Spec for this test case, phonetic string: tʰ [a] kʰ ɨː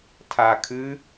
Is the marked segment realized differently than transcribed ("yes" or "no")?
no